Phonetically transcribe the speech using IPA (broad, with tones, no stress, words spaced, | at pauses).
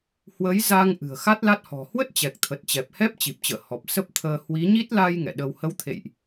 hwə˨˦j za˧ŋ ʔɨ̤˨˩ə̯xa˦˥t̚la˦˥t̚hɔ̤˨˩ hwə˦˥t̚t͡ɕɛ˨˩k̚t̪ʰə˨˩t̚t͡ɕɛ˨˩p̚ hɛ˦˥p̚t͡ɕi˨˩p̚t͡ɕə̰ː˧˨ hɔ˨˩p̚ sə˦˥p̚t̪ʰəː˧ hwi˨˦ɲi˦˥t̚ la˧j ŋɛ̰˧˨ɗə˧w hə˨˦wt̪ʰḛ˧˨jʔ